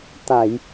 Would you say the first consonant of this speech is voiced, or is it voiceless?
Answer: voiceless